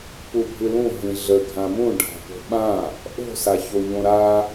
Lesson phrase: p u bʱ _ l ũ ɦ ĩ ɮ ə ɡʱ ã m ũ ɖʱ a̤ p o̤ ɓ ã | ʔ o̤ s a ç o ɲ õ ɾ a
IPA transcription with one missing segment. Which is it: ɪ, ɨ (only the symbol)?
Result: ɨ